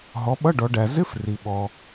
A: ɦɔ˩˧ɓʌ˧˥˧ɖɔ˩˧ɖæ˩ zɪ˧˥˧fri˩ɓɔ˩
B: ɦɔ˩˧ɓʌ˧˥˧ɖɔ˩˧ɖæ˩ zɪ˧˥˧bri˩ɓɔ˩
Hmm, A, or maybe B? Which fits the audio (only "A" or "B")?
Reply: A